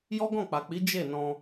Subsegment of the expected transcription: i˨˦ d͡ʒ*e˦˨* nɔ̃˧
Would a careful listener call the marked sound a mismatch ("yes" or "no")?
no